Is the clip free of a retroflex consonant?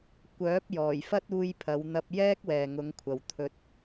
yes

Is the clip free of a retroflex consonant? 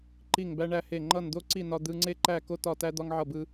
no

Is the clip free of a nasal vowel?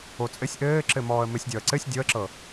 yes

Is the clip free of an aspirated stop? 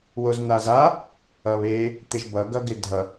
yes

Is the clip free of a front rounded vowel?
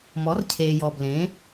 yes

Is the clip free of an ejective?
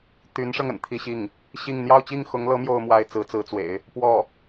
yes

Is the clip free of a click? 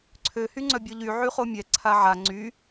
no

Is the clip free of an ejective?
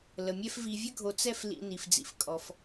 no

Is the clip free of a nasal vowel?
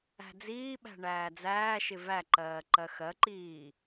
yes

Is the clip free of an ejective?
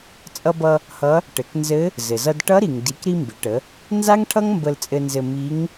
no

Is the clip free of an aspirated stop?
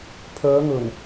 no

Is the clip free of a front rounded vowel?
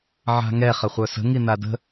no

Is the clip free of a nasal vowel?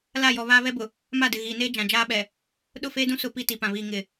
no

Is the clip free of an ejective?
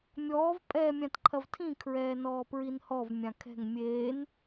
no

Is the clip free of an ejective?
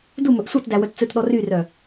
yes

